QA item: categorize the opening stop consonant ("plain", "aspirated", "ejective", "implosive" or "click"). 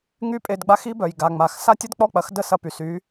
ejective